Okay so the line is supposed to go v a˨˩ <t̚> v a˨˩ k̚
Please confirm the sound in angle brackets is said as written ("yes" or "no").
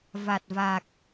yes